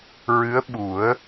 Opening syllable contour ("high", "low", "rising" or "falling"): rising